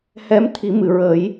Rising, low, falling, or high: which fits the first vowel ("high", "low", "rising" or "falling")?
rising